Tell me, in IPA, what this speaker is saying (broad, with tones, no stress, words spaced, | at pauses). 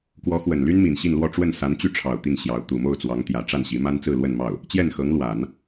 kwɔ˧˥xwə˨˩nly˥n mi˨˩nɕi˥˧nlwɔ˥˧ ʈ͡ʂwə˥˩nsa˧˥nt͡ɕy˥˩ʈ͡ʂʰɑ˨˩ʊ̯ t̪i˥˩ŋɕjɑ˧˥ʊ̯ t̪u˨˩mo˥˩ʊ̯t͡swɑ˧˥ŋ t̪jä˧˥ ʈ͡ʂa˥˩nɕi˧˥ma˥n t͡sɹ̩˥˧lwə˥˧nmɑ˥˩ʊ̯ | t͡ɕjɛ˥˩nxɤ˧˥ŋlwa˨˩˦n